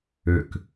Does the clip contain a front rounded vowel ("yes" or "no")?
yes